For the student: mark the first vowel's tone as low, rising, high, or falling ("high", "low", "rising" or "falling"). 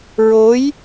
rising